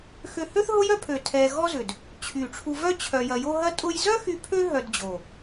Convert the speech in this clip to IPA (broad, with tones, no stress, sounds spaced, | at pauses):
x ø˧ h ø˥ θ ɦ ʊ˥ j œ˥ pʰ ø˨˩ tʰ ɛ˧ ɣ ɔ˥ z ʏ˨˩ d | t͡ɕʰ y˨˩ ʈ͡ʂʰ u˧ v œ˥ t͡ɕʰ œ˧ j ɐ˧ j o˥ ɦ ɐ˥ tʼ ʊ˥ j z œ˥ x y˧ pʰ ø˥ ɦ œ˧ d d͡ʑ o˨˩